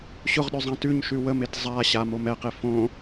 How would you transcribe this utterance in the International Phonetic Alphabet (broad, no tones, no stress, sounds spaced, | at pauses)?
ɕ ʊ ʁ ɗ ʉ zˤ ã t ʉ ɲ ʃ ʉ w ə m e t zˤ a ɕ a m o m ɛ q e f õ